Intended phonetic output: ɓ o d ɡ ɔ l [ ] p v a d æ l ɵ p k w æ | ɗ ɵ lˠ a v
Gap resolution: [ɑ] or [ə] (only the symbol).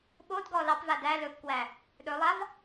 ɑ